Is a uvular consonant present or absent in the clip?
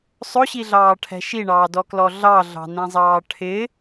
absent